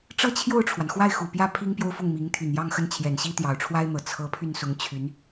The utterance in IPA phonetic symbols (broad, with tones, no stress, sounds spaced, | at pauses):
ʈ͡ʂ ɤ˥ t͡ɕʰ j o˥˩ ʊ̯ ʈ͡ʂʰ w a˩ n x w a˥˩ ɪ̯ x u˨˩ p j ä˥˩ pʰ i˥ ŋ p j o˥ ʊ̯ f ʊ˥˩ ŋ m i˧˥ ŋ t̪ʰ y˨˩ n j ɑ˥˧ ŋ x ə˥˩ n t͡ɕʰ j ɛ˨˩ n ɕ i˥ t̪ j ɑ˨˩ ʊ̯ ʈ͡ʂʰ w a˥ ɪ̯ n̪ ɤ˨˩ t͡sʰ ɤ˧˥ pʰ y˥˩ n s ʊ˧˥ ŋ t͡ɕʰ y˧˥ n